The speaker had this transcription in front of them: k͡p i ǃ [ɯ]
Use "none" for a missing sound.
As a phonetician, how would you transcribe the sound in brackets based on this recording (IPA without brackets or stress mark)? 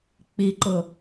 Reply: ʊ